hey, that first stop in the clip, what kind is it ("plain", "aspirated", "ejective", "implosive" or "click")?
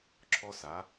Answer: click